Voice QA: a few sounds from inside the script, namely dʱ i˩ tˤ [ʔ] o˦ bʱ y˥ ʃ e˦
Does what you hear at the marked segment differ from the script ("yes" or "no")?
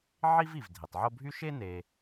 yes